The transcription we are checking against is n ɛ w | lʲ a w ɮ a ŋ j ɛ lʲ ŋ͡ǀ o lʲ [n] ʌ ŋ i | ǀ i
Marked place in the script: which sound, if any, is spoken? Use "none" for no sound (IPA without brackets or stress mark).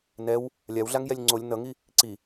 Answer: n